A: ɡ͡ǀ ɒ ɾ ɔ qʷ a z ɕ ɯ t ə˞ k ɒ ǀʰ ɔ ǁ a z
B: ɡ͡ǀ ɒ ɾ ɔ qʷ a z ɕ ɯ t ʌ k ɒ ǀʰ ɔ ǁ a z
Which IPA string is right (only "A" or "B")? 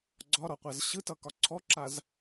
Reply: B